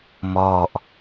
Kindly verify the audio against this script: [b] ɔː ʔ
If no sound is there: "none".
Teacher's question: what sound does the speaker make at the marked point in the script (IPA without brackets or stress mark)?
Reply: m